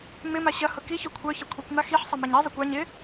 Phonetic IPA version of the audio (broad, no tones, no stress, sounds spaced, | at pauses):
m ɪ m a ɕ ɐ h ʊ k i ç œ kʷʰ œ ç ɐ kʷʰ i kʷ m a x i ħ sˤ ɐ m ɛ ɲ i zˤ œ kʷ a ɲ ɪ